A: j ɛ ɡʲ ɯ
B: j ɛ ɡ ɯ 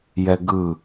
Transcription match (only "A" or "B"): B